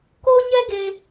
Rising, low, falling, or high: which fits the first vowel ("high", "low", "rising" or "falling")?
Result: high